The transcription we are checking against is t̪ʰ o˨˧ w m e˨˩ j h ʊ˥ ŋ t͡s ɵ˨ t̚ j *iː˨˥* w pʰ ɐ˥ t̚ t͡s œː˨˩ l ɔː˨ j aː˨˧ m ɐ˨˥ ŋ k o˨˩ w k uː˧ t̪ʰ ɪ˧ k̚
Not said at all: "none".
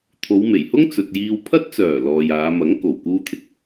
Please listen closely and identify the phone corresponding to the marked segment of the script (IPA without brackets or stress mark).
iː˧